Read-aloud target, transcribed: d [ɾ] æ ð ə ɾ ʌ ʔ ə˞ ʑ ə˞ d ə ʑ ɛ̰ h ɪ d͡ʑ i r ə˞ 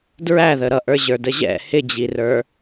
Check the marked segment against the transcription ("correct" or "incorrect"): incorrect